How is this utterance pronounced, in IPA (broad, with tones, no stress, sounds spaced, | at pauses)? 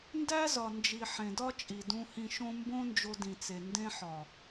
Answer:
n d æ˦ z ɒ˨ n d͡ʒ i˨ ħ ẽ˨ d ɒ˦ t͡ʃʼ i˨ d ũ˧ h ĩ˧ ʃ õ˦ m b õ˦ n d͡ʒ o˧ d ĩ˨ t͡s e˨ n d ẽ˧ ħ ɒ˨